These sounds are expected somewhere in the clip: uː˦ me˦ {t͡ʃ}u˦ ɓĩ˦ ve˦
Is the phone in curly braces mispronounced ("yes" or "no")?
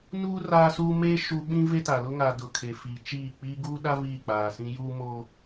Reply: yes